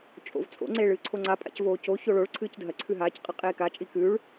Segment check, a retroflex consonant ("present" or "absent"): present